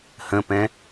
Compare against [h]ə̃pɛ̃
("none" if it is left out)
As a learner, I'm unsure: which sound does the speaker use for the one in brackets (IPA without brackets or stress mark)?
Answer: h